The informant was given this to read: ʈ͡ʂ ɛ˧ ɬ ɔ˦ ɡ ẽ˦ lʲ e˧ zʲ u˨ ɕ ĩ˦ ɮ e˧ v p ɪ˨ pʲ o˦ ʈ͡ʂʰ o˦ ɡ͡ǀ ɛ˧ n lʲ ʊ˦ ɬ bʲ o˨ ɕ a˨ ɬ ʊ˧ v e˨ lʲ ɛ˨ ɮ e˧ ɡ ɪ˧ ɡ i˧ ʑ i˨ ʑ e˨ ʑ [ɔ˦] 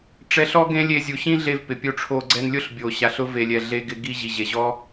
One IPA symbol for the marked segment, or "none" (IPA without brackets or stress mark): ɔ˦